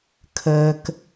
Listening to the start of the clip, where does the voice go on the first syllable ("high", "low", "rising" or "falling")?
low